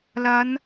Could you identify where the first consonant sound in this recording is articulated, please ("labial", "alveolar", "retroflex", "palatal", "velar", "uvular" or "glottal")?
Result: alveolar